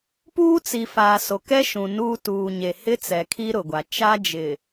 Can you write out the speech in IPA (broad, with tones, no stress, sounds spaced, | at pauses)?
p uː˦ t͡s i˨ f aː˨ s o˨ k ɛ˦ ʃ ũ˨ n uː˦ t uː˨ ɲ e˨ h ɪ˦ t͡s ɛ˨ kʰ i˦ ɾ ʊ˨ ɡʷ a˨ t͡ʃ a˦ d͡ʒ ɪ˨